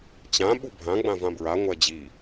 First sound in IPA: t͡ɕ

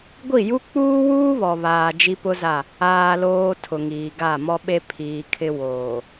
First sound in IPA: ɡʷ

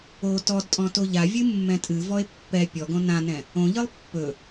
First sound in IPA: o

